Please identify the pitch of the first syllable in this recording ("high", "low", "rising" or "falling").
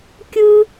high